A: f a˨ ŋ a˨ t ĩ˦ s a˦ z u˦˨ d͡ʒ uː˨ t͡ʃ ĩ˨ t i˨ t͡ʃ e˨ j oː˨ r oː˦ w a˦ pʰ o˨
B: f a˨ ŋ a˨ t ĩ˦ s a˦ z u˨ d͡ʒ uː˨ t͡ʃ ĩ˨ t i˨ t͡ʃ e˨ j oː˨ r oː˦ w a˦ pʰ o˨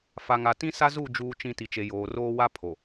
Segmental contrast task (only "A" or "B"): A